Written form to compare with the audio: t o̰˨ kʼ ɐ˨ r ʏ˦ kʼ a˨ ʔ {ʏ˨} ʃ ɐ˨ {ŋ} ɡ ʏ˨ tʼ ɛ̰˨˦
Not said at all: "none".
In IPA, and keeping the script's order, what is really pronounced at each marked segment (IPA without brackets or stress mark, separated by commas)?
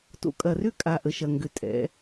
ə˨, ŋ